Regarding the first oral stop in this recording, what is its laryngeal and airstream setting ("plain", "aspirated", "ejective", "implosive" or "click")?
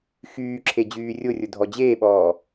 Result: click